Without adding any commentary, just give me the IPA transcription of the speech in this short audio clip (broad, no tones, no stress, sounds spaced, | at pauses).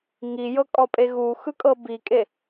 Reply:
ŋ i j ɤ kʼ ɔ pʼ e ɣ u x ɯ kʼ ɤ b i kʼ e